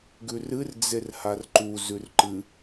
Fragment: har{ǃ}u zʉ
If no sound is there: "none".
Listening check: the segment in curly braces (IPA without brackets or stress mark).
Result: ǃ